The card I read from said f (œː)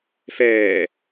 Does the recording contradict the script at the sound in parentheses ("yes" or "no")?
yes